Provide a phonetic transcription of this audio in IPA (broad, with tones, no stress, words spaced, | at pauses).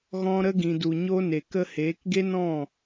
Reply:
ɣɔ̃˧ ɾə˧ɡĩ˨du˨ɲo˧ ne˨kə˧heː˨˦kɡe˦ nɔ̃˦˨